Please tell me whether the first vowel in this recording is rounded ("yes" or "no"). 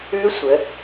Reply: yes